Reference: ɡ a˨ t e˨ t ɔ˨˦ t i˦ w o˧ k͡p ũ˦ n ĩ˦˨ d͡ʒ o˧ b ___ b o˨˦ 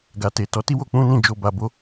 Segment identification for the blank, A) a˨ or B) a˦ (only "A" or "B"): A